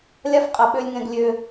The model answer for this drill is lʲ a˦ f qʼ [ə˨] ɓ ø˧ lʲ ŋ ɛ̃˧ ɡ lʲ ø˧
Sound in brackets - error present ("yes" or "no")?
yes